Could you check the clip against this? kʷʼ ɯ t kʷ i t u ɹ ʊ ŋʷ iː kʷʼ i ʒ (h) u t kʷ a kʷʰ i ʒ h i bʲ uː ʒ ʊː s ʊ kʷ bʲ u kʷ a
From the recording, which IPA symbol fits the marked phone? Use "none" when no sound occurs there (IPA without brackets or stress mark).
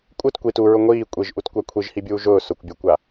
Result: ʔ